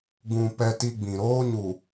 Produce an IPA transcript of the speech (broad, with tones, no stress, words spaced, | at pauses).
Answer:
ɡũ˨ pɛ˦ti˦ɡ͡bĩ˨ ɾoː˦ɲu˨